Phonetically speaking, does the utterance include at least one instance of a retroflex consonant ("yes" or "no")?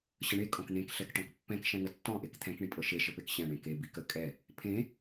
yes